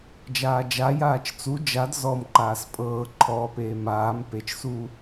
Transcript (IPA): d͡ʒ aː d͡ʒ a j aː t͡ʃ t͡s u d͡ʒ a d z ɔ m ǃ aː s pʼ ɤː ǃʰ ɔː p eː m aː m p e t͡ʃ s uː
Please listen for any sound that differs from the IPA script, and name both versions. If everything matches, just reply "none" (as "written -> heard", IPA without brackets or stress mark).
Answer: none